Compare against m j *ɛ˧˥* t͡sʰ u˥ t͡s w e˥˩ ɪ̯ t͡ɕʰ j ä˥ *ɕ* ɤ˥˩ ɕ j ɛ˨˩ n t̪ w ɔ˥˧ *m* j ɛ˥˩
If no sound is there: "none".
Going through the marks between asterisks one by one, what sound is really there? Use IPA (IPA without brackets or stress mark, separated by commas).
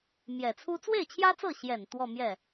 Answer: ɛ˨˩, t͡s, m